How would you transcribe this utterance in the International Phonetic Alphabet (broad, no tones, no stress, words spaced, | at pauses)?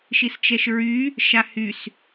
ʃist͡ʃɛʃɹy | ʃahys